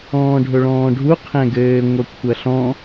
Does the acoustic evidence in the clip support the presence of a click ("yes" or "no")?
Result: no